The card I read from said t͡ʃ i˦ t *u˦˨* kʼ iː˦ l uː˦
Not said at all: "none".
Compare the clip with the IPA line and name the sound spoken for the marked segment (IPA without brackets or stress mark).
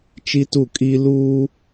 u˦˨